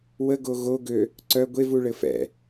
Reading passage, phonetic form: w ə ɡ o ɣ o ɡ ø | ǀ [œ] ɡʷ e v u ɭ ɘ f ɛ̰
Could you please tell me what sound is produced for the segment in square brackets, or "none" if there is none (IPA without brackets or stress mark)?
œ